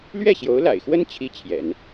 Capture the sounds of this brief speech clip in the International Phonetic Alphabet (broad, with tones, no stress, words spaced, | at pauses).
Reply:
lɥɛ˥˩ɕjo˧˥ʊ̯la̰˨˩ɪ̯xwə˥n t͡ɕʰi˥t͡ɕʰjɛ̰˨˩˦n